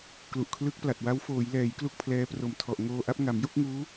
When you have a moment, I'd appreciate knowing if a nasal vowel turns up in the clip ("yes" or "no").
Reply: no